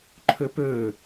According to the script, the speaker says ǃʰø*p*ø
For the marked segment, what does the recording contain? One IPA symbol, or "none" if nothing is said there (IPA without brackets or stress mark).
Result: p